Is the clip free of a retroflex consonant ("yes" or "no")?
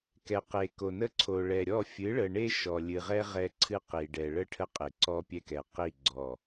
no